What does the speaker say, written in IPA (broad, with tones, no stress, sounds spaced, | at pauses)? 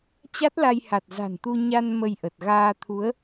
t͡ɕ a˦˥ t̚ l a˧ j h a˨˩ t̚ z a̤˨˩ n t̪ u˧ ɲ a˧ n m ə˧ j ʔ ə˨˩ t̚ ɣ aː˧ t̪ʰ u˨˦ ə̯